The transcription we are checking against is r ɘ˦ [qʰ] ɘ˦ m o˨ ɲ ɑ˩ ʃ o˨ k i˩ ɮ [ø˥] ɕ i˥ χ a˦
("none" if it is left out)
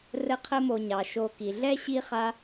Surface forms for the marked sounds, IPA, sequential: qʰ, ɛ˥

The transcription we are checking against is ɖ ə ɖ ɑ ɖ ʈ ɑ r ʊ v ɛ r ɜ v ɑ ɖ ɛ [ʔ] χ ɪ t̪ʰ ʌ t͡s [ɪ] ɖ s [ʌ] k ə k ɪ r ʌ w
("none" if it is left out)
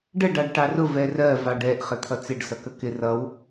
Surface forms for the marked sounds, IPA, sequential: ʔ, ɪ, ʌ

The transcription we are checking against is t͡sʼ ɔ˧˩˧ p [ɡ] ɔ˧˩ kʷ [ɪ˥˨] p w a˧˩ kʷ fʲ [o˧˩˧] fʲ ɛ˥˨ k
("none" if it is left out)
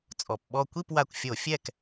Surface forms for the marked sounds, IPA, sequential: ɓ, i˥˨, o˧˩˧

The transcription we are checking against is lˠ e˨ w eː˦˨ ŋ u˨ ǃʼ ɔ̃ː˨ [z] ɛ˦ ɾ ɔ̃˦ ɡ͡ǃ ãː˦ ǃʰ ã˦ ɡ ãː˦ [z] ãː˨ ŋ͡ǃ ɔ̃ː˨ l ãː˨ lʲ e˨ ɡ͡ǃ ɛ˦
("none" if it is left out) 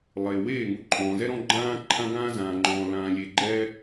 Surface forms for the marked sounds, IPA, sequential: z, z

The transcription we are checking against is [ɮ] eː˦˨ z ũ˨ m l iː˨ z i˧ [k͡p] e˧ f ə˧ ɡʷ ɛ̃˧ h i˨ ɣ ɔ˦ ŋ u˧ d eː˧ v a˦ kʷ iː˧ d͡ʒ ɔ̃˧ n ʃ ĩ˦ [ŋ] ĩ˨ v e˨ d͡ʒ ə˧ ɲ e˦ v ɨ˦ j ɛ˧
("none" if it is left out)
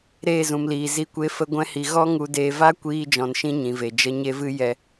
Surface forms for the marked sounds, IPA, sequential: ɾ, kʷ, ɲ

